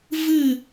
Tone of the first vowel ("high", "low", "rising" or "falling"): falling